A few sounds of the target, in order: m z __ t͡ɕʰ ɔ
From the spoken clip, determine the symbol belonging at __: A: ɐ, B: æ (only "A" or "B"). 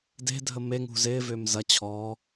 A